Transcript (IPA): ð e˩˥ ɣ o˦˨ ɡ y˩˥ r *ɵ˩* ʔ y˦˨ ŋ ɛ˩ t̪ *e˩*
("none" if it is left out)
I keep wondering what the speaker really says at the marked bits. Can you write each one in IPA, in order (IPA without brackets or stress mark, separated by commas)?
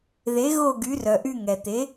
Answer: œ˩, e˩˥